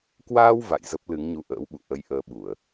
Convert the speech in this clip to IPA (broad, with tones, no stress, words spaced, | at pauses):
kwaː˧w va̰˧˨jzə˦˥p̚ lɨ˨˦ŋɲu˧ʔə̰ː˧˥wɓṵ˧˨ ʔə˧jʔəː˧ɓu˧˩˨ə̯